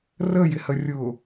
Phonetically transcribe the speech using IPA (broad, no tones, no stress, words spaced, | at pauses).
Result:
rəjɪhə rʲʊ